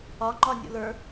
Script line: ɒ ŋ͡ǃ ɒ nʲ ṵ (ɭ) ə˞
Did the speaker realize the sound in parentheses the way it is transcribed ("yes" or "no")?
no